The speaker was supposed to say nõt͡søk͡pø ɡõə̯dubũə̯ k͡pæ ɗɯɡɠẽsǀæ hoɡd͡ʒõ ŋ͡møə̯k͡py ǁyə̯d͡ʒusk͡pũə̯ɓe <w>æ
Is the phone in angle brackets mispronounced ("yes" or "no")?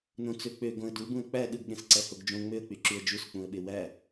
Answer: no